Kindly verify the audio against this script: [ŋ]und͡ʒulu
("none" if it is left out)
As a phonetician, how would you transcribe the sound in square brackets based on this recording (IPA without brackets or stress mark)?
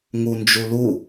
ŋ